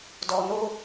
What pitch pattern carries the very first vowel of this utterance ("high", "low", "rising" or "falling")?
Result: low